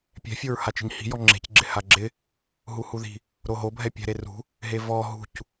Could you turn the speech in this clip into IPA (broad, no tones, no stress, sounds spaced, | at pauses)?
pʲ ɛ̤ fʲ o ɹ h a t͡ʃ i̤ ɲ h i̤ j ɔ ŋ͡ǁ e̤ c ɡ͡ǁ ɪ h a ɡ͡ǁ ɪ | ɦ u h u ð i̤ | ɾ o ɦ o bʱ ɛ pʲ ɛ̤ ɾ e r ṳ | ɦ e v ɔ ɦ ṳ c